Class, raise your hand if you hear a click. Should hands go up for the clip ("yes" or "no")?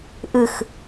no